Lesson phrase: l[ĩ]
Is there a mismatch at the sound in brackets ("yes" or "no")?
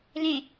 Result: yes